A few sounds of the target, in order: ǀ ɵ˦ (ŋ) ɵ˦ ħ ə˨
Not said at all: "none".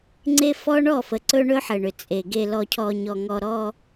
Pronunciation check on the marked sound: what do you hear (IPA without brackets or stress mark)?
ɳ